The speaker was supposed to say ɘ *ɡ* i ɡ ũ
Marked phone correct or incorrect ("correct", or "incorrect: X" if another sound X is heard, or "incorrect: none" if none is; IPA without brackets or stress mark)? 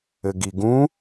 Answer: correct